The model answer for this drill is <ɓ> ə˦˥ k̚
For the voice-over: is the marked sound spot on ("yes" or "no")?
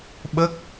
yes